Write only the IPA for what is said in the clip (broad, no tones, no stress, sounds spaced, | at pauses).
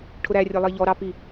ʈʰ ʊ ɾ æ rʲ ə lˠ i ʎ ɔ ɾ ɑ p i